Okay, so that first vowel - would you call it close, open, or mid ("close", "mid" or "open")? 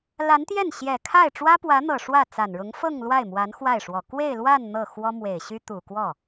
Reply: open